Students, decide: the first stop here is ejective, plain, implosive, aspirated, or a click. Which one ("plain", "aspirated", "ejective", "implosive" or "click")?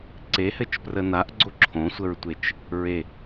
click